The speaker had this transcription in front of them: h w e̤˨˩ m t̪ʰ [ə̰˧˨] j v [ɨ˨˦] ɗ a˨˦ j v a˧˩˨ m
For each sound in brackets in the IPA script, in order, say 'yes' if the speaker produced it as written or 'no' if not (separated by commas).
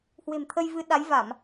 no, yes